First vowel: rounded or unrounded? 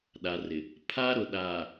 unrounded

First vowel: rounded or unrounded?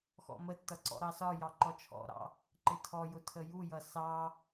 rounded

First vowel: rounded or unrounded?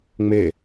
unrounded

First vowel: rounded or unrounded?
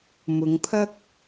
rounded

